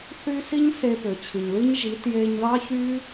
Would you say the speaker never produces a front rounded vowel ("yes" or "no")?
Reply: no